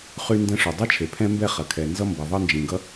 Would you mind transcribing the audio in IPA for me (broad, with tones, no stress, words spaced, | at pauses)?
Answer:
χy˥ndɛ̃˥ ʂo˩dˤɐ˥t͡ʃʰe˩ pʰɛ̃˥mbɛ˥ χɐ˩kʰɛ˩nzʌ˥mbʌ˩ ðˤʌ˥nd͡ʒĩ˩ɡʌ˥